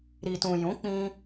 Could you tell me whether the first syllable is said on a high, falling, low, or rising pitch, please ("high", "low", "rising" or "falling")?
low